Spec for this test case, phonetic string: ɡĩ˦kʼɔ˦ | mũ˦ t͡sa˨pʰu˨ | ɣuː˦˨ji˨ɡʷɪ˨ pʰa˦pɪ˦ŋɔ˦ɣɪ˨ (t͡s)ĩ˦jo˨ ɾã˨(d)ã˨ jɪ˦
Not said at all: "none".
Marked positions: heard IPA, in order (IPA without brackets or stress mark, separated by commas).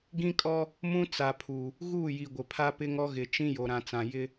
t͡ʃ, t͡s